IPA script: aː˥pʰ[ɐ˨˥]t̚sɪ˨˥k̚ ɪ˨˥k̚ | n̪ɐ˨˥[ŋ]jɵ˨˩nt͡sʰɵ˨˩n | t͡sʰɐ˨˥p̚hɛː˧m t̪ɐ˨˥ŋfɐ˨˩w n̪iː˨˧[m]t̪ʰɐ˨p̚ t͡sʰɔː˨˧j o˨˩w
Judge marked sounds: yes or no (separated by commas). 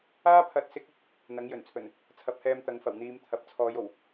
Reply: yes, yes, yes